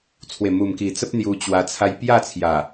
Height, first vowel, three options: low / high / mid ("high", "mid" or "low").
mid